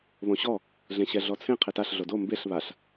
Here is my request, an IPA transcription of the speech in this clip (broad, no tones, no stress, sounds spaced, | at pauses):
β õ ɕ ɔ | ɮ ẽ ɕ ɛ ɮ ɔ t͡sʰ ẽ qʰ e t a ɬ ɮ o d o m b e ɬ β a ɬ